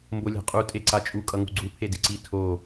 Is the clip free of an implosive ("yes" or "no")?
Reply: yes